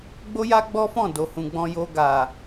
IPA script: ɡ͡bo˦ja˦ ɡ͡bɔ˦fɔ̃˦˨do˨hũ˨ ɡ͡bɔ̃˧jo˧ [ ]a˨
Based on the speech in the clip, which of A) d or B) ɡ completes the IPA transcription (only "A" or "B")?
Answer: B